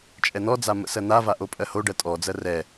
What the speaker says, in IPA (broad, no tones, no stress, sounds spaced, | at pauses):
t͡ʃʼ ɛ n̪ ɔ d͡z a m ə̰ s ɜ n̪ a v a ʔ o pʼ ɜ h o ɖ ɜ tʼ ɔ d͡z ɜ r ɛ